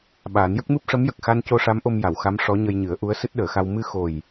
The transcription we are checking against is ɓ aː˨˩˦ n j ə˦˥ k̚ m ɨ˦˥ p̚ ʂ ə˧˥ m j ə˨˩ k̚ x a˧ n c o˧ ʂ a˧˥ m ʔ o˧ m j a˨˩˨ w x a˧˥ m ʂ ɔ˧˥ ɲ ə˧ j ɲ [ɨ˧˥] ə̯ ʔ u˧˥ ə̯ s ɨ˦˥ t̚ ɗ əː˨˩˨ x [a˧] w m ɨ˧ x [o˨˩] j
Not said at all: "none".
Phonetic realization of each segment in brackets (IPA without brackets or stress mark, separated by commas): ɨ˨˩˦, a˧, o˨˩